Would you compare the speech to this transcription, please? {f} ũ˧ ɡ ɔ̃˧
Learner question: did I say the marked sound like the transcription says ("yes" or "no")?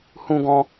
no